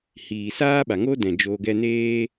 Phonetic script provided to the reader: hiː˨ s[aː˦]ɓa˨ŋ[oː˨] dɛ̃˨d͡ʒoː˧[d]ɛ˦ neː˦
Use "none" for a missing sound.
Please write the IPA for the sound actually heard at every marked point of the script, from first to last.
aː˦, oː˦, ɡ

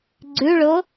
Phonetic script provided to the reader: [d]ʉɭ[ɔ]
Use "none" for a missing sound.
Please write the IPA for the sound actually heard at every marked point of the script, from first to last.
ɡ͡ǀ, o

